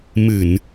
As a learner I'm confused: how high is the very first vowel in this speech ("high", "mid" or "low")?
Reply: high